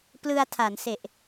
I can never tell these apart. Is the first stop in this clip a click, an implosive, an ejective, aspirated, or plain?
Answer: plain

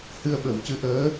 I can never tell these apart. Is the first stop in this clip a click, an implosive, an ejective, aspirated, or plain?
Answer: implosive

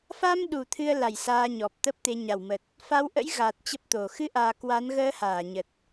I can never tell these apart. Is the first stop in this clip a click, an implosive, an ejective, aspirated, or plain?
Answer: implosive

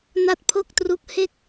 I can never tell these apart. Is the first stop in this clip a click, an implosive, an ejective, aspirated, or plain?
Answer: plain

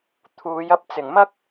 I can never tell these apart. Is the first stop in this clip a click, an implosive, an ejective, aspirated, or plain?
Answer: aspirated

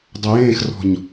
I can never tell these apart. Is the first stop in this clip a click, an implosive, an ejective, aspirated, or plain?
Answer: plain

